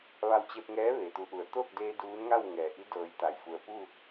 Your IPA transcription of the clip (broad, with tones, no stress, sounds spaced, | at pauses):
ʋ a˧ w t͡ɕ e˧ p̚ ŋ ɛː˧˥ ʋ eː˩ t̪ u˩˧ ʔ u˩ ə̯ t̪ o˥˨ k̚ d eː˧ d uː˧˥ n ŋ a˥˨ w ŋ ɛː˩ ʔ i˧˥ d ɤː˩˧ j t̪ a˩ j f u˩ ə̯ p u˥˨